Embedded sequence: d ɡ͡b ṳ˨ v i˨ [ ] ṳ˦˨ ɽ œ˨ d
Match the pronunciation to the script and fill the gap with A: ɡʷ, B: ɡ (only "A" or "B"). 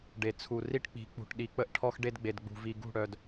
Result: B